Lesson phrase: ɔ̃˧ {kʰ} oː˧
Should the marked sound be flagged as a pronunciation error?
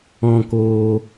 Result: yes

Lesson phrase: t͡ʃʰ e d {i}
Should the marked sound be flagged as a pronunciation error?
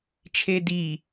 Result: no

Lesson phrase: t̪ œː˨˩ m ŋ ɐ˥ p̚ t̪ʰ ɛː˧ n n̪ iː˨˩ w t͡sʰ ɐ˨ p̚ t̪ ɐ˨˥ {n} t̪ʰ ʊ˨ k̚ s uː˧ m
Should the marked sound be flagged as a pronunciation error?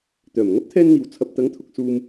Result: yes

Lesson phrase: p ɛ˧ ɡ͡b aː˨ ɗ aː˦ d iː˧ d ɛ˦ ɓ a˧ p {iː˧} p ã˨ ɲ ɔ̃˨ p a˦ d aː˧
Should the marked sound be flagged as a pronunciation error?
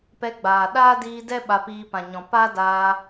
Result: no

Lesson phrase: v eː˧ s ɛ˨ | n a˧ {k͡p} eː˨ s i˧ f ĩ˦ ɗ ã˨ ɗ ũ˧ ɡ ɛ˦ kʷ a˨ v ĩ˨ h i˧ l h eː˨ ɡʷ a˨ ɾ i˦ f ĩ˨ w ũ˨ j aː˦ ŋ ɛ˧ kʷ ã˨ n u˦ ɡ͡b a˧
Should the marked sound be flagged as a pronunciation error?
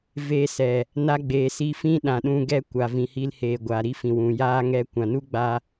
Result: yes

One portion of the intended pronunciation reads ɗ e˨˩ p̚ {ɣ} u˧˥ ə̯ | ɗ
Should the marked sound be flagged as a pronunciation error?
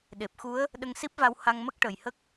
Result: yes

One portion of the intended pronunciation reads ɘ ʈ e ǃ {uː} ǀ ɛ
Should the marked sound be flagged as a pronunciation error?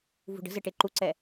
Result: yes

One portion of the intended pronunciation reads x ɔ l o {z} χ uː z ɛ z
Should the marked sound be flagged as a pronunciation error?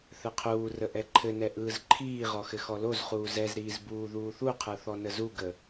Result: no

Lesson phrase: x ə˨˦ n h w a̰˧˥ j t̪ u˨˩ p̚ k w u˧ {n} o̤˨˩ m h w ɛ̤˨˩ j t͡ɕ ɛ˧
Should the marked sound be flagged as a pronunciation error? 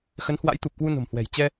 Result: no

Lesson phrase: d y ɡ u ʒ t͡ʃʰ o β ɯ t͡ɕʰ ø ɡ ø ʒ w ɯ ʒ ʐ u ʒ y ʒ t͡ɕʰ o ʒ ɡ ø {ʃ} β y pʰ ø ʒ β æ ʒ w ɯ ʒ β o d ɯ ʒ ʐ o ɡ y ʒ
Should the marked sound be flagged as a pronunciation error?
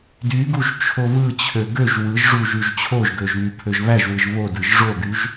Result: yes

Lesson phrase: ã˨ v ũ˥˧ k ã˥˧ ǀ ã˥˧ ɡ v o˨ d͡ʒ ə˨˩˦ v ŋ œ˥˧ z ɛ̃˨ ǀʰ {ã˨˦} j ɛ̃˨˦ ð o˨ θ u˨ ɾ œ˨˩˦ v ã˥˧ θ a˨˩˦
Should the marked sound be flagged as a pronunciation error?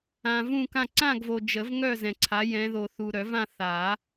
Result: yes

